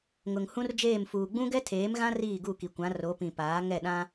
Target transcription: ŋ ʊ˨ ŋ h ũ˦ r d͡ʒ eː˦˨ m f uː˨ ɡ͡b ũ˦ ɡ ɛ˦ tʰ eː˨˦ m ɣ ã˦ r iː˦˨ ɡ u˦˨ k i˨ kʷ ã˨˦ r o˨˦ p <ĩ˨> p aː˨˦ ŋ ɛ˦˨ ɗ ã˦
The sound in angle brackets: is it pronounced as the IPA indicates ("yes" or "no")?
yes